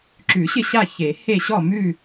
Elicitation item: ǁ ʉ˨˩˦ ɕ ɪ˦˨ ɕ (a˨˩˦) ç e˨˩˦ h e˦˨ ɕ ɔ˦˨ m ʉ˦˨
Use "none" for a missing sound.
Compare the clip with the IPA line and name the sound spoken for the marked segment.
a˦˨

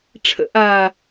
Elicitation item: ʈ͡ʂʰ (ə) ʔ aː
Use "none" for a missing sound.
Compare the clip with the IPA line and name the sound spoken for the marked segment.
ə̰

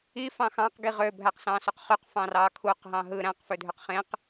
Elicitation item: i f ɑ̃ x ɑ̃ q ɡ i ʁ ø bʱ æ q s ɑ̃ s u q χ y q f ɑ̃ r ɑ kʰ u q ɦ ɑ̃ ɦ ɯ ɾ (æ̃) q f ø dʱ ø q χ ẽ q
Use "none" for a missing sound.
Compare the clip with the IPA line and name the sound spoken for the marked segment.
æ̃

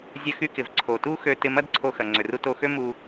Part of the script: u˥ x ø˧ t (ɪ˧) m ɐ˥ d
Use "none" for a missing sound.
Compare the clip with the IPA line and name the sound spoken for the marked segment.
ɪ˧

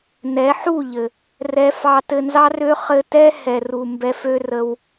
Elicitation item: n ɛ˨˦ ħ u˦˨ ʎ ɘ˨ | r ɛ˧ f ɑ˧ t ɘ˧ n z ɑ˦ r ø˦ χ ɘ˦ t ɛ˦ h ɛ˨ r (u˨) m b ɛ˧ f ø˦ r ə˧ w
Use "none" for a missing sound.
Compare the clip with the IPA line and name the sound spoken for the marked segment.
u˨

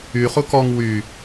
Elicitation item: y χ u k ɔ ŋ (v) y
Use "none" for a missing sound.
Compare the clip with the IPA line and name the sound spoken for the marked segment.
w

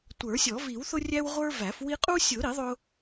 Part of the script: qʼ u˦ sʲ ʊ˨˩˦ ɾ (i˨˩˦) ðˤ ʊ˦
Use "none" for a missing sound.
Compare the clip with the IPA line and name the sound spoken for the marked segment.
i˨˩˦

